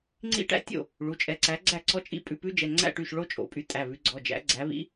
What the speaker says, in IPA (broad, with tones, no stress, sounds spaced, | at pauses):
ŋ͡ǀ ḭ˦˥ ʈ æ̰˦˥ tʲ o̰˥˩ | ɭ u˩˧˩ t͡ʃʼ ɛ˨˦ ǀ æ˨˦ ɡ͡ǀ æ˥˩ ǀ ɔ˦˥ t͡ʃʼ ḭ˦˥ pʼ ʉ˩˧˩ p ʉ˦˥ d͡ʒ ɛ˩˧˩ ŋ͡ǀ æ̰˥˩ ʈ y˥˩ ʃ ɭ o˦˥ t͡ʃʼ o̰˨˦ pʼ y˨˦ tʼ æ˩˧˩ β ʉ˨˦ ɡ͡ǀ ɔ˩˧˩ d͡ʒ æ̰˨˦ ɡ͡ǀ æ˨˦ β ḭ˦˥